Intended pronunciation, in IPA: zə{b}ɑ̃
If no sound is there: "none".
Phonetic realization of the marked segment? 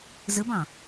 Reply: b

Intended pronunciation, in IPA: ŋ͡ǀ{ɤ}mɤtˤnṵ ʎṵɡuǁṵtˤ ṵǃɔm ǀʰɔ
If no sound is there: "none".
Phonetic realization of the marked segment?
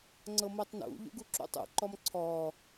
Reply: ɤ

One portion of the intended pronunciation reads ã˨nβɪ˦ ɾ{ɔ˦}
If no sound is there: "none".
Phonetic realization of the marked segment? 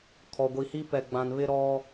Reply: ɔ˦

